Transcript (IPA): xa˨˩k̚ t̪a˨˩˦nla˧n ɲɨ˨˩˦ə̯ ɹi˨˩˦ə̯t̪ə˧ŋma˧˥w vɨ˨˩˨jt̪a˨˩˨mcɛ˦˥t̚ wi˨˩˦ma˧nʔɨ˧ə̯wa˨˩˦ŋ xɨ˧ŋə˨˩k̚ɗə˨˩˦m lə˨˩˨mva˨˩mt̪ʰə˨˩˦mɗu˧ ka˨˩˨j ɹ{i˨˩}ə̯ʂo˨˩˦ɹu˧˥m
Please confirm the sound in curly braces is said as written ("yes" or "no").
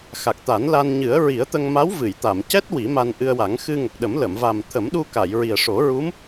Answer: yes